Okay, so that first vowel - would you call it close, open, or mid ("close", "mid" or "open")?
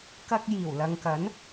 open